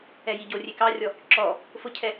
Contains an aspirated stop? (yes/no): yes